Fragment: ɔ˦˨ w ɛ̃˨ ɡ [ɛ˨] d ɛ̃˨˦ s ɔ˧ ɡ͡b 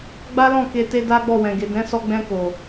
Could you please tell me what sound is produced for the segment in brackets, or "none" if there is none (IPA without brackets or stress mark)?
e˨